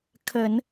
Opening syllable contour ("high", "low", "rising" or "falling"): low